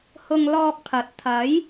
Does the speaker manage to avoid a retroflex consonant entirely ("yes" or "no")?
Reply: yes